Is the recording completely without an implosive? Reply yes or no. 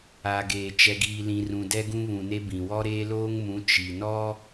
yes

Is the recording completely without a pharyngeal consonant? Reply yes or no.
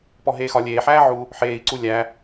no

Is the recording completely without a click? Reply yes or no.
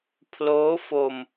yes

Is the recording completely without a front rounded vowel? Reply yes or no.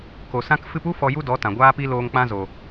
yes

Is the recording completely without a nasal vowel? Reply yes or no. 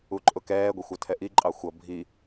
yes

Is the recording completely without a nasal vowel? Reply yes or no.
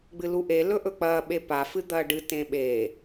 no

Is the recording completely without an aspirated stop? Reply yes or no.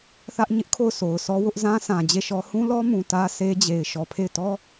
no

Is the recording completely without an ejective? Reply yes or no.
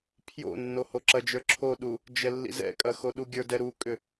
no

